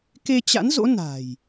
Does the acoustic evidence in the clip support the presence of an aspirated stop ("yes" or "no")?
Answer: no